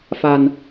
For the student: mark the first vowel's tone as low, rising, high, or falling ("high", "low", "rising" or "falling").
low